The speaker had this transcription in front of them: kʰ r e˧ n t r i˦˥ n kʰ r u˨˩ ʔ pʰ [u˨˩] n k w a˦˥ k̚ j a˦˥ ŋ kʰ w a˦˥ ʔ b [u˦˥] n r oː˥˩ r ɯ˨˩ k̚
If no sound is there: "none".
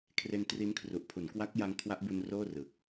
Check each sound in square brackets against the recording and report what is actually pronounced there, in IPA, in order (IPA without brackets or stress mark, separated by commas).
u˩˦, u˧